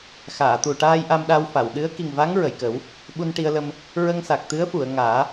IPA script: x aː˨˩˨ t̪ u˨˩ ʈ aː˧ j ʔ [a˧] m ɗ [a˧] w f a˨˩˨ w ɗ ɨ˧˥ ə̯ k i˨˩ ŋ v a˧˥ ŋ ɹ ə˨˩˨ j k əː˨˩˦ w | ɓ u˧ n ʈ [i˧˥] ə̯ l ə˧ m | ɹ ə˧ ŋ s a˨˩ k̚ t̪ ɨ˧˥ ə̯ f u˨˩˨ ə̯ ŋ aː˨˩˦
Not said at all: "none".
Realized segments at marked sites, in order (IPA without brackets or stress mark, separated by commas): a˧, a˧, i˧